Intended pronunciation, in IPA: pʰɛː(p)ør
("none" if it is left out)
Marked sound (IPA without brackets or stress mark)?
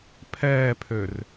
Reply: pʰ